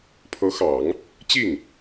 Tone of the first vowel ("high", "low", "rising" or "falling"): rising